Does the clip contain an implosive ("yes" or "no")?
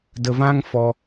no